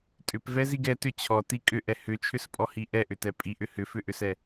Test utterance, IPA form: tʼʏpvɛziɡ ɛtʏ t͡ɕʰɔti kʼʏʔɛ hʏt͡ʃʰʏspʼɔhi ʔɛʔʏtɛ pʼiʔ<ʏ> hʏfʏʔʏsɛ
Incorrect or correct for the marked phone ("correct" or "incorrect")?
correct